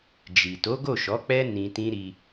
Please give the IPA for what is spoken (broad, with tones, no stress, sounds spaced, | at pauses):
d͡ʒ i˨ t o˨˦ ɡ o˦˨ ʃ ɔ˨˦ k͡p ɛ˦ n ĩ˧ t ĩ˦ ɾ i˧